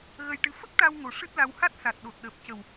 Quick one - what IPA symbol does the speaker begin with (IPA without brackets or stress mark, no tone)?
ɣ